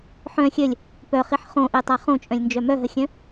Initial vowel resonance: nasal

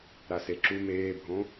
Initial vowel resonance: oral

